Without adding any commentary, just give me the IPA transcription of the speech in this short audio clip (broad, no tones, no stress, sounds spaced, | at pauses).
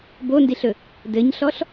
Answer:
b o n d i ɬ ɵ | d ɘ ɲ ɬ ɔ ɬ